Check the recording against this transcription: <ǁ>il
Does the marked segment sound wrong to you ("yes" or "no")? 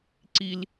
yes